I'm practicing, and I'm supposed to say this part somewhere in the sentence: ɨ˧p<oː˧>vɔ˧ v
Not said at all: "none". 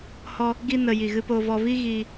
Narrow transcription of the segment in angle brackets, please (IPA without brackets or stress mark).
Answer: oː˧